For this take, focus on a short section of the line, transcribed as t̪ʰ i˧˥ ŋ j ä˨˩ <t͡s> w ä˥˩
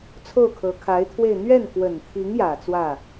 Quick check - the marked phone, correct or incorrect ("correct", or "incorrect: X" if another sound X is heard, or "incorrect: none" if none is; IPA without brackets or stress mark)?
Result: correct